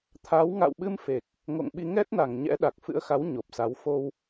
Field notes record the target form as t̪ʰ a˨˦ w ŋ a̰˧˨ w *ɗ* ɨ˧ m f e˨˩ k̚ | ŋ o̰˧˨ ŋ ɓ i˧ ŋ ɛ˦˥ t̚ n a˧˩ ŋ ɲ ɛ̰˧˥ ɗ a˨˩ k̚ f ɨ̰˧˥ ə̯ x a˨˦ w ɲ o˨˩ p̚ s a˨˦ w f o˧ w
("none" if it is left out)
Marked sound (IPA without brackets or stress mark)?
ɓ